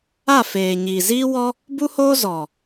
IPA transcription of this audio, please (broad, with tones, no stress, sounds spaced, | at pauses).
a˦˨ f eː˨ ɲ iː˨ z iː˦ w ɔ˦ | b u˦ h oː˦ z ɔ˨